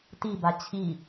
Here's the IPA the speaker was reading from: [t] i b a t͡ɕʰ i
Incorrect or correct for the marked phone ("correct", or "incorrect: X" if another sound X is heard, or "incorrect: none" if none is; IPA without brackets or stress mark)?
correct